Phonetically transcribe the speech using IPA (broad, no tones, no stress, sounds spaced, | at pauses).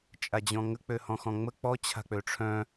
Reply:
t͡ʃʼ a d͡ʑ ɔ̃ ŋ ə k͡p ø h ɔ̃ x ɔ̃ ŋ͡m ə k͡p ɔ t͡ɕʰ a̤ k͡p ø ʈ͡ʂʰ œ̃